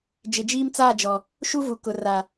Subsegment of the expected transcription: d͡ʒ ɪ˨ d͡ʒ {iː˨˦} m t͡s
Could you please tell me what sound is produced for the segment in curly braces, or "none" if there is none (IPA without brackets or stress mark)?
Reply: iː˦